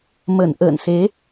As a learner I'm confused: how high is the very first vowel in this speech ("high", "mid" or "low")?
mid